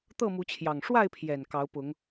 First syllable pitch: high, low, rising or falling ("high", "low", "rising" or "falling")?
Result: falling